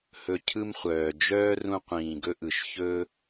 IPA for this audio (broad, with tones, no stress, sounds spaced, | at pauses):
h ɵ˨ cʰ ɯ˦ m χʷ œː˨ d͡ʒ œː˦ r ũ˧ qʷ ĩː˨ ɡ ɵ˦ ʔ ɯ˨ ʃ ç ɵː˦